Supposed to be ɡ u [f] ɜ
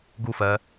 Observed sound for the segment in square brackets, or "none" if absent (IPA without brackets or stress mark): f